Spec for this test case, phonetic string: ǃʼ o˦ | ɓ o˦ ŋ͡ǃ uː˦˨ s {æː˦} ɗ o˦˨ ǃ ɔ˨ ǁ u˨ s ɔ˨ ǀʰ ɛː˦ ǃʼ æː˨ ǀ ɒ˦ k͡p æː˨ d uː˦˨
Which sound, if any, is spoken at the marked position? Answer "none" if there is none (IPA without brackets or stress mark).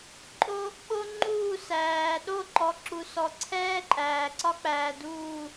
æː˨